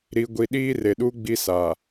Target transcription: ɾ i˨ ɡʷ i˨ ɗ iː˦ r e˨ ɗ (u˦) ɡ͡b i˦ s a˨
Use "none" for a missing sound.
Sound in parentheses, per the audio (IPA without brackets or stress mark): u˦